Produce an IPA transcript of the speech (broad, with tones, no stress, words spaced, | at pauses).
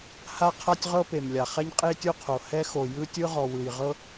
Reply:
ha˥qʰa˥tʲ ʁɤ˥pe˩mlʲa˩ χɛ˥ɲqʼe˥tʲo˥qʰo˩ hɛ˥xo˩ jɯ˥tʲɯ˥ʁɔ˩ wɯ˩jʁɤ˥